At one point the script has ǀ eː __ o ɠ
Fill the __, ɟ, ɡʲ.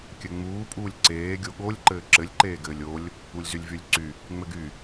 ɡʲ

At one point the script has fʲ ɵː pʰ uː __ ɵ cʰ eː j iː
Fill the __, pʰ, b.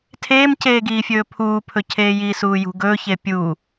pʰ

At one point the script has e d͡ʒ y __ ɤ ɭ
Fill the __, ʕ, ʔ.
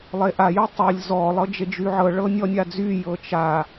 ʕ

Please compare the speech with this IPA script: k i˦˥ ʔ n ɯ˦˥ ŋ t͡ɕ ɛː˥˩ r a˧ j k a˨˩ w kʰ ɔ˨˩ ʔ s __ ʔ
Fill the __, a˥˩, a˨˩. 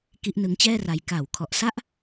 a˥˩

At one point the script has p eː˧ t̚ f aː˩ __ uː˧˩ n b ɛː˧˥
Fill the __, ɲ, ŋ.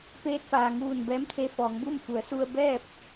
ŋ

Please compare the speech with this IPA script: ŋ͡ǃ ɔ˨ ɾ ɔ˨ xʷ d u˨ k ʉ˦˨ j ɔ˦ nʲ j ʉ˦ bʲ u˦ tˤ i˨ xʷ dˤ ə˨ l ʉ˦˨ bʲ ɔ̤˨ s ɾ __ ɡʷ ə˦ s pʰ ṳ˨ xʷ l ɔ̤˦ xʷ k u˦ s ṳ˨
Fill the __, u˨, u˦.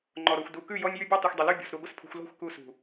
u˨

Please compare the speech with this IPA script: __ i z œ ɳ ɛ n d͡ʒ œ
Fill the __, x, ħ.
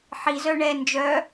ħ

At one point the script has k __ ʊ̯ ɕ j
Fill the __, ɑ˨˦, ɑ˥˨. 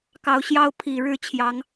ɑ˨˦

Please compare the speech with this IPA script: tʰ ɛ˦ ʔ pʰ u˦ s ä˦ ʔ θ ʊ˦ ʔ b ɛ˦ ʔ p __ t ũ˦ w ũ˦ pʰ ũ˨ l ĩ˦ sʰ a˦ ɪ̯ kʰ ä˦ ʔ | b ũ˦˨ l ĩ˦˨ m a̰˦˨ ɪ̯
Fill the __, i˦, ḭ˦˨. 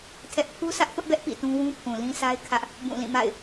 ḭ˦˨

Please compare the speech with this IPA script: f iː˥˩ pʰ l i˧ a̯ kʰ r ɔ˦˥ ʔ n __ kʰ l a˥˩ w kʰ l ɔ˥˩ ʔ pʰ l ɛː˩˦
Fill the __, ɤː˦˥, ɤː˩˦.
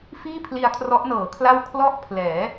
ɤː˩˦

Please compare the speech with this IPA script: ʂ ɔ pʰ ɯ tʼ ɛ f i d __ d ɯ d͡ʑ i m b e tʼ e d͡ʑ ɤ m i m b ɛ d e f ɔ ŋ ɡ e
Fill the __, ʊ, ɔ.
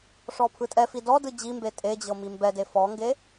ɔ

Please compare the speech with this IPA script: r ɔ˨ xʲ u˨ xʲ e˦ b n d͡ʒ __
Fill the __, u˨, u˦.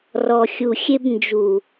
u˨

